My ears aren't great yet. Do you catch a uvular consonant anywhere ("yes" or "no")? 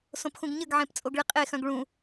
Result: yes